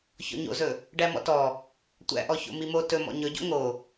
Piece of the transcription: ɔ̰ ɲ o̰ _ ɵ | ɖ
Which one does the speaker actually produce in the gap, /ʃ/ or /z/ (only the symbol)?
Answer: z